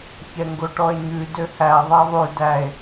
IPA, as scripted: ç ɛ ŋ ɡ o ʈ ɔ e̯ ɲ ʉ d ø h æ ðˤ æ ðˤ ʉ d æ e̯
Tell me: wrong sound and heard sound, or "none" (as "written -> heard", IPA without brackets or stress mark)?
none